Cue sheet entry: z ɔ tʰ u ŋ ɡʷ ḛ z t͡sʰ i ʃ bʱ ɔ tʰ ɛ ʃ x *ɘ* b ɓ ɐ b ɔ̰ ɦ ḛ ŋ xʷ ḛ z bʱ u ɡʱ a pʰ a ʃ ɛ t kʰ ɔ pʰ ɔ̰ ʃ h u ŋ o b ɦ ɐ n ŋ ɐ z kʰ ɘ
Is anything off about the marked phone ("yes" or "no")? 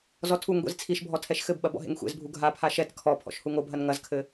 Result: no